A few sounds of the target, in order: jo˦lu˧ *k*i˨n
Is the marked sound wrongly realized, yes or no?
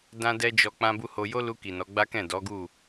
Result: no